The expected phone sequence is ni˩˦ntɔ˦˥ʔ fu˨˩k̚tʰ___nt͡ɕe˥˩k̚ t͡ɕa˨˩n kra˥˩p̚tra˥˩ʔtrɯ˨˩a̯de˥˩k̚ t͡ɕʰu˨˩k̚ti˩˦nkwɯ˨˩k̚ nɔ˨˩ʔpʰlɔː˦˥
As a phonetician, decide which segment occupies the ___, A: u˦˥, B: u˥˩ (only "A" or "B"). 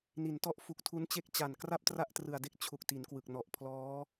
A